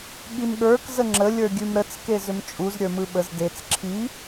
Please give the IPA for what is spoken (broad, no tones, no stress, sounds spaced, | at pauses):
ɠ i m ɠ ə˞ k z ə ŋ͡ǁ ə lʲ ə˞ ɡʲ ʉ m ɾ ə t͡s k e z ʏ m t͡ʃʼ u z ɾʲ ə˞ m ɯ ɓ ə z d e t͡s ǁʰ i